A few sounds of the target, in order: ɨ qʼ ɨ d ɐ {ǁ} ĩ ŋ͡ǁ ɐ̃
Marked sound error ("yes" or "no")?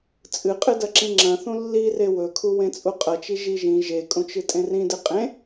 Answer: no